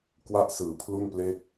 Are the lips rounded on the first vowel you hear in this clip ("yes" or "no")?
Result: no